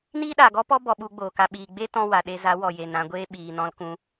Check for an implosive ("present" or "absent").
present